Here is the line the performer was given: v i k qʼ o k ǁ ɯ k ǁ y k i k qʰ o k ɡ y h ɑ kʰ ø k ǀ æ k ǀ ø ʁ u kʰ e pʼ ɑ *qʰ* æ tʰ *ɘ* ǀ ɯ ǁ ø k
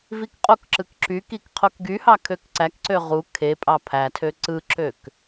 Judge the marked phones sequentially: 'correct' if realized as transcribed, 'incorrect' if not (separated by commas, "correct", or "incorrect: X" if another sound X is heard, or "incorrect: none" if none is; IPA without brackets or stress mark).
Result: incorrect: pʰ, incorrect: ø